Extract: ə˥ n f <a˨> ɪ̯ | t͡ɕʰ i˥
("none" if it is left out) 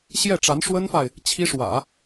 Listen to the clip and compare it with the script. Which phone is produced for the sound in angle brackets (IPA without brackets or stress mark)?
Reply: a˨